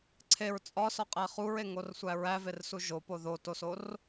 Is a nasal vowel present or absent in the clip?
absent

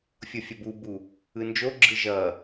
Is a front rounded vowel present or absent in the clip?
absent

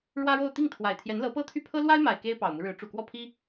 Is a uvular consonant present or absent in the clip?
absent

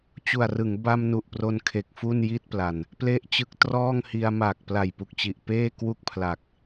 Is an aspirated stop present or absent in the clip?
present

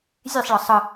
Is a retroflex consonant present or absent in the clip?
present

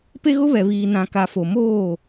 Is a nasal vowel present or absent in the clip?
present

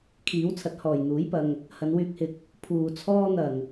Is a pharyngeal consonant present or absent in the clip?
absent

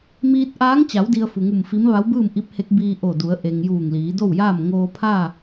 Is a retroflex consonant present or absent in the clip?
absent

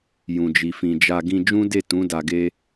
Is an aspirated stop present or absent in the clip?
absent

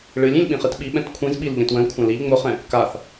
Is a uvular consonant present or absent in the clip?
present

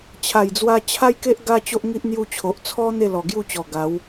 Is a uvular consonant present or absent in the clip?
absent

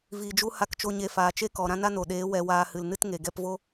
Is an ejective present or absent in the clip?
absent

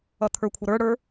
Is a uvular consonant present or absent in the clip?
absent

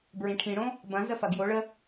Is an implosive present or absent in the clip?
absent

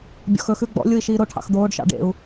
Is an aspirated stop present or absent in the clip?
present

